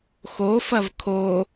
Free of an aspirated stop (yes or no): no